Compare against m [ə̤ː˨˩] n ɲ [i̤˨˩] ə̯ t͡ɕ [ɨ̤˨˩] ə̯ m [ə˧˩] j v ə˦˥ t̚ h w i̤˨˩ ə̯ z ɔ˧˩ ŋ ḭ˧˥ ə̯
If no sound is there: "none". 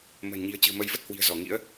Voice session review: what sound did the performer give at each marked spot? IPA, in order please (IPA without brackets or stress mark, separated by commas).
ə̤ː˨˩, i̤˨˩, ɨ̤˨˩, ə˧